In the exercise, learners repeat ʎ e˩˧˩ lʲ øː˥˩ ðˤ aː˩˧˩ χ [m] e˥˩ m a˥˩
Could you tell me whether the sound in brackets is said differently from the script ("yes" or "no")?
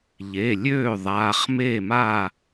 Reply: no